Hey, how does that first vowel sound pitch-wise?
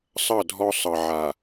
falling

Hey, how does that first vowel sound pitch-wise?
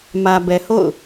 low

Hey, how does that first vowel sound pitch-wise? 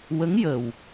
rising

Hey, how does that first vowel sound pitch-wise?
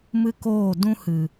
high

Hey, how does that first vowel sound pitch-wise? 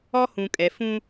high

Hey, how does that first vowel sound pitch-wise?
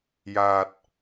low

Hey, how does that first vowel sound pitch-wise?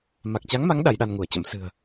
low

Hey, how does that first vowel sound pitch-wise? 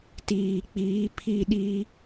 low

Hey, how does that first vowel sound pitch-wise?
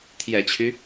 low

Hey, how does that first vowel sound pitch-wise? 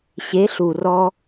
rising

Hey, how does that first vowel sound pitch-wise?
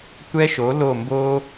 high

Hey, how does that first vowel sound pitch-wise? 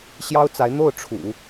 high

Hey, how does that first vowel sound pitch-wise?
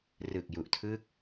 low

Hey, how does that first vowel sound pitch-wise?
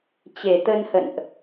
low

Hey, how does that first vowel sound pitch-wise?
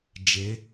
rising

